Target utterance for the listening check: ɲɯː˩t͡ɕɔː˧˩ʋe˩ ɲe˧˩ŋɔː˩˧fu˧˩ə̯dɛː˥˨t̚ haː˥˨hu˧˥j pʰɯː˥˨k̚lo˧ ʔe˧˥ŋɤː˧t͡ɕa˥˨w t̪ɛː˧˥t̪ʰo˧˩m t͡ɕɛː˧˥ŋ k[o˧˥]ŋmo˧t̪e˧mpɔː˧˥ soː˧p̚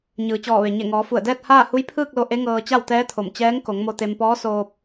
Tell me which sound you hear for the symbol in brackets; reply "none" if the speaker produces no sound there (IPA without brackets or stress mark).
o˩˧